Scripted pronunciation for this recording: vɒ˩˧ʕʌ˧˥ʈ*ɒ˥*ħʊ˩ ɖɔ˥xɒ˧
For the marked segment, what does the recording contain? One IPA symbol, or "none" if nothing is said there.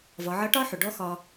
ɒ˥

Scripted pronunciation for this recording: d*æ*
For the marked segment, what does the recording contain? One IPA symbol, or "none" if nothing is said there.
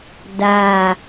a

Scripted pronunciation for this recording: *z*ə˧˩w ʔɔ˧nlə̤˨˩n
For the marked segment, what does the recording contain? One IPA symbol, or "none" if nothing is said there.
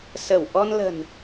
s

